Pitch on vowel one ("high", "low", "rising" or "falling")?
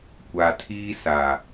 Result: low